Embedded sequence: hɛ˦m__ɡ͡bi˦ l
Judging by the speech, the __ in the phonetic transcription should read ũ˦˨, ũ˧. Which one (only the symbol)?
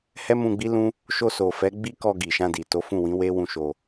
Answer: ũ˧